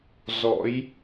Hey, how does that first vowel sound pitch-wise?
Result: rising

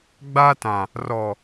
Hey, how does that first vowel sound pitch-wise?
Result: high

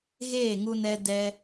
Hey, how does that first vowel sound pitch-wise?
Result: falling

